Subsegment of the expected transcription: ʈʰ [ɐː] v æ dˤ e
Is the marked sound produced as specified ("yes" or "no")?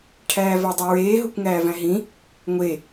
no